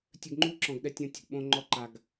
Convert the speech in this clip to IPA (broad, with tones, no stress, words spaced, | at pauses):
tʲɘ˧ɡŋ͡ǃu˦ ǁɔ̃˨ɡɗɛ˧ tʲɔ̃˧tʲo̤˨ɡɓõ˧ ŋ͡ǃɔ˧ǃa˨ɡ